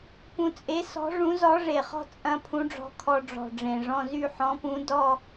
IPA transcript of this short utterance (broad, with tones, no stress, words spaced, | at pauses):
pũ˧t͡sʼe˧˥ sɔ̤˧˥ ʐũ˧˥zɔ˧˥ʐe˨˩χɔ̤˥˧ t͡sʼɐ̃˧ pʰũ˧˥ɖ͡ʐɔ̤˧˥kʰɔ˧ ɖ͡ʐɔ̤˨˩ɖ͡ʐẽ˨˩ʐɔ̃˥˧ zy˥˧ħɔ̃˧˥pũ˧˥ dɔ˥˧